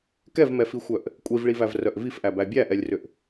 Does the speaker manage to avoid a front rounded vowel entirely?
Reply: no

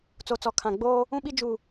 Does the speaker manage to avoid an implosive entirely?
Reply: no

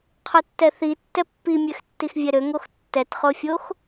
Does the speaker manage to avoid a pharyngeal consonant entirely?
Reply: yes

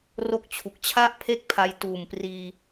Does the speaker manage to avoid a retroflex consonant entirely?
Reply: yes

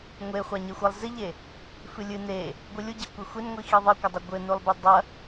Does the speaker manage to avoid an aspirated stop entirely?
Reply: yes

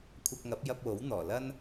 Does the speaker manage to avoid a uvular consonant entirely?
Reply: yes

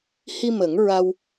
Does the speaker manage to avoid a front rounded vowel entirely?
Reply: yes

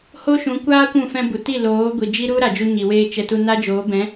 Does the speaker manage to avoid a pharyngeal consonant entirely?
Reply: yes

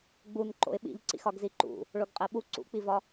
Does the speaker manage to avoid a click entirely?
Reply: no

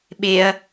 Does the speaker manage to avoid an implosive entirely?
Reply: no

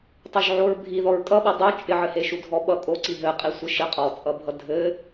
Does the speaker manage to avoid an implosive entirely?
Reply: no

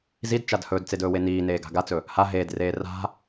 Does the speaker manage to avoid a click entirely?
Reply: yes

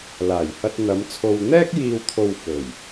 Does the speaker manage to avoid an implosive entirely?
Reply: yes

